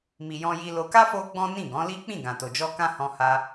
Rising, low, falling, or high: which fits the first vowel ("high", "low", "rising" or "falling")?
low